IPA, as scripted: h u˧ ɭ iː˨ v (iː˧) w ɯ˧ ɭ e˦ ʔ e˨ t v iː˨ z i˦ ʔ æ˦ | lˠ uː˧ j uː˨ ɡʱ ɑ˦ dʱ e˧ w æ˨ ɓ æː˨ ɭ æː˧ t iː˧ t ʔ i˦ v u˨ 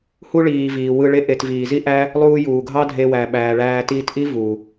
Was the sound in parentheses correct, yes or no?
no